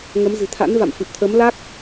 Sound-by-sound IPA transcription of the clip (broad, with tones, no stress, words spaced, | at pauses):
ŋə˨˦mzɨ̤˨˩t̪ʰa̰˧˥n va̰˧˨mfɨ˨˩p̚t̪ʰə˨˦m la˦˥k̚